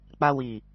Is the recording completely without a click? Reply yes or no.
yes